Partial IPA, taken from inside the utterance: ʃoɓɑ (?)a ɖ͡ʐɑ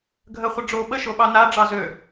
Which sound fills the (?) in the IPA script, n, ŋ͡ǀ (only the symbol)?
n